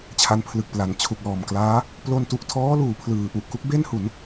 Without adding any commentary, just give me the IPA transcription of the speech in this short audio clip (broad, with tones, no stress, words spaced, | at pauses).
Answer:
t͡ɕʰa˦˥npʰlɯ˨˩k̚pla˩˦n t͡ɕʰu˨˩k̚lɔː˨˩mklaː˦˥ | plo˧ntu˨˩ʔtʰɔː˦˥luː˩˦ pʰlɯː˩˦ʔu˨˩ʔ ku˦˥k̚be˥˩nhu˩˦n